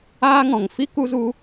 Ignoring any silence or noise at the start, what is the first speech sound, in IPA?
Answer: aː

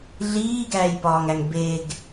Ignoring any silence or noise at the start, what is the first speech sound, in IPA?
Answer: ɮ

